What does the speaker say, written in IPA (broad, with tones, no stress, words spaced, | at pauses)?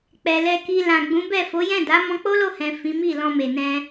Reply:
k͡pɛ˨ lɛ˧ki˧ lã˨ɡ͡bũ˨˦bɛ˦˨ fo˨˦jɛ̃˦˨da˨˦ mɔ̃˧k͡po˦lo˦˨hɛ̃˨ fĩ˨˦mi˦˨lɔ̃˧me˨ nɛ̃˧